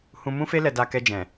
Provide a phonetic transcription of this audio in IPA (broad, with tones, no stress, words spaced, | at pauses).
hũ˧mũ˦fe˦ lɛ˧da˧kɛ˧d͡ʒɛ̃˨